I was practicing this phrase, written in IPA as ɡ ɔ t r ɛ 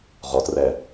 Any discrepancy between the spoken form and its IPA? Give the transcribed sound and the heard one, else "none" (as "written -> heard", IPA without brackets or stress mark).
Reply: ɡ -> ʁ